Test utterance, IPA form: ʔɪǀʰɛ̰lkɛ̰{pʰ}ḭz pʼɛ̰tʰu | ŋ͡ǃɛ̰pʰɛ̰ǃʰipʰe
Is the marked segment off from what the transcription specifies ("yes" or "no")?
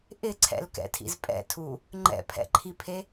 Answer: yes